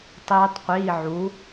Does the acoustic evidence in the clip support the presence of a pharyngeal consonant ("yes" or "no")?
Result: yes